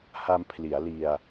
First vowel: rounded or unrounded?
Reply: unrounded